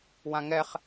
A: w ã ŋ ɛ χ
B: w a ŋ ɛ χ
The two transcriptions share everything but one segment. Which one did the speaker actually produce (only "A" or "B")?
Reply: A